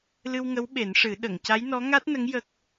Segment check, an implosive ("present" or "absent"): present